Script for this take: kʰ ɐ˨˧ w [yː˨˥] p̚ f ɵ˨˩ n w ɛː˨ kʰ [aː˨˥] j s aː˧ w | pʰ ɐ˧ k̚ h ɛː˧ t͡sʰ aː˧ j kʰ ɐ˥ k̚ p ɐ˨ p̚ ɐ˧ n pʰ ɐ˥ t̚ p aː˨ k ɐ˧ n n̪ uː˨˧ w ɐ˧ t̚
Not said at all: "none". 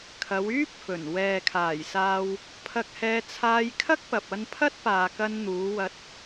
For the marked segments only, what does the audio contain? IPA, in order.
yː˥, aː˨˩

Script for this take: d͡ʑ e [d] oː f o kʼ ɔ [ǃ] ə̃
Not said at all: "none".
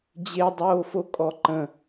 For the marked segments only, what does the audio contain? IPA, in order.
dˤ, ǃ

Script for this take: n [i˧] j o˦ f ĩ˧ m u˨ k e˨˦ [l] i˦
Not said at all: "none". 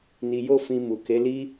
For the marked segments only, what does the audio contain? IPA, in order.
i˧, l

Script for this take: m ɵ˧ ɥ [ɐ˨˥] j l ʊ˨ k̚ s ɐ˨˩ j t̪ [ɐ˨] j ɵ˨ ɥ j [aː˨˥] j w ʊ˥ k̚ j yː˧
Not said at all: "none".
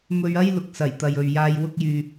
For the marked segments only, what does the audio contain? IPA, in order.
ɐ˥, ɐ˨, aː˧

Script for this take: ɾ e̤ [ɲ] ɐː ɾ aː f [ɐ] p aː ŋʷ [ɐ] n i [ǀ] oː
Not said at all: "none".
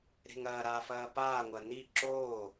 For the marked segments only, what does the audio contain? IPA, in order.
ŋ, ɐː, ɐ, ǁ

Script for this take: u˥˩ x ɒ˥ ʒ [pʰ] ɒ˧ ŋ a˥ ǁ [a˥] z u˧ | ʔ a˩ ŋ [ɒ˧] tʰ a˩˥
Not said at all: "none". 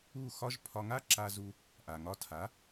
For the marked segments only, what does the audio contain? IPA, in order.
pʰ, a˧, ɒ˧

